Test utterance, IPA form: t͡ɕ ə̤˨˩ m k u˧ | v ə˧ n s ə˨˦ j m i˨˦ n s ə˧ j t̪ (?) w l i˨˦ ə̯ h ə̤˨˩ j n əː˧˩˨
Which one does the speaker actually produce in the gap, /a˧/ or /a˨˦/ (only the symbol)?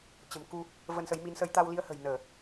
a˧